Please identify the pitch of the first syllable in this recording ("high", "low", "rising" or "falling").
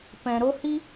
low